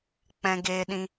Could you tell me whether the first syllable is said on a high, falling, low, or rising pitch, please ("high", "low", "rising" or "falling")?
high